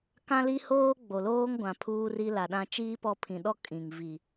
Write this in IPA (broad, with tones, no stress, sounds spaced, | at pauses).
k ã˦ l i˦ h oː˦ ɡ͡b o˨ l oː˦ ŋ ɡʷ ã˨ pʰ uː˦ r i˦ l a˨ ɗ ã˦ t͡ʃ iː˦ p ɔ˦˨ pʰ ĩ˨ ɗ ɔ˦ kʼ ĩ˨ ŋ v i˨